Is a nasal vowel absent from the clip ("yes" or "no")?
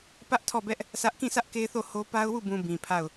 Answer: no